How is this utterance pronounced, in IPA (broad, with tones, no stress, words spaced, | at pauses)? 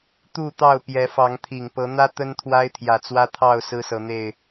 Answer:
t̪u˥˨t̪ɑ˥˨ʊ̯ pjɛ˨˦fɑ˨˦ŋt̪ʰi˨˩ŋ pɤ˨˦n̪ä˦ t̪ə˦n t̪ʰwa˦ɪ̯t̪ʰjä˨˩t͡swä˦ t̪ʰɑ˥˨ʊ̯ sɹ̩˦sɤ˨˦n̪e˥˨ɪ̯